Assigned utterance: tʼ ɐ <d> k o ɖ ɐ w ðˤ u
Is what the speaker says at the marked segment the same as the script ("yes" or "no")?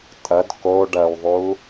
yes